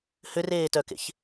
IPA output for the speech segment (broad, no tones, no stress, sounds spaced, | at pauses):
h ʏ r eː t œ k ḛ ç